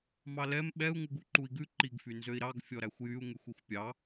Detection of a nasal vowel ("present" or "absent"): absent